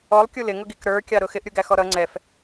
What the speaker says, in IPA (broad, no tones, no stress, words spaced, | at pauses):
ɔlˠkʲu lɪŋʊɡik ɾə˞kʲɑɾʊ xɪʔɾʲuɡæxɔ ɾʌ ŋ͡ǀɛf